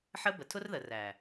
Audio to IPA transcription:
ħ ə˦ b ə˨ tʰ ʊ˦ r ð ə˨ r æ˨

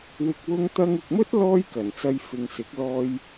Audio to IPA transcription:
w ɪ˨ k̚ w ʊ˧ ŋ t̪ ɐ˧ ŋ ɪ˨ k̚ m ɵ˥ t̚ l ɔː˥ j k ɐ˨˩ n t͡s ɐ˧ j f ɪ˨ ŋ s ɪ˨˥ k̚ l ɔː˧ j

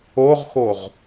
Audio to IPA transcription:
o ʁ x o ʁ

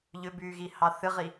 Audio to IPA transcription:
ʎ ʏ b yː ɣ i h ɑ θ ɨ ʁ i

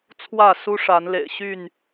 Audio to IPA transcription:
t͡sʰ w ä˥˨ s u˦ ʂ a˨˦ n l ḛ˨˩ ɪ̯ ɕ y˥˨ n

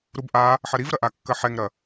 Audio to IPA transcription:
ɾ u b ʔ a | ħ ɐ ɾ i v ɾ ɐ ʔ a kː ɐ ħ ɛ ŋ ɾ ɐ

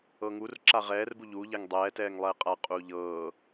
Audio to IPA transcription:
ɤ ŋ u r ǁ a ʁ ɛː r b u ʎ uː ʎ ɛ ŋ dˤ ɛː t ɛː ŋ lˠ ɛː qʼ a qʼ uː ʎ ɤː

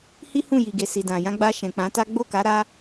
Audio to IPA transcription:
h i˦ h ũ˦˨ j i˨ ɡ e˨ s i˨ d ã˨ j ã˧ ɡ͡b a˧ ʃ ɛ̃˨ k͡p ã˨˦ t a˦ ɡ͡b o˦˨ k a˨˦ ɾ a˦

